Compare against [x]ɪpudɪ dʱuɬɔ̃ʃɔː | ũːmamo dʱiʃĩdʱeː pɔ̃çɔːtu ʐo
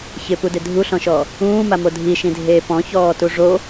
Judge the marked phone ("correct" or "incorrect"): incorrect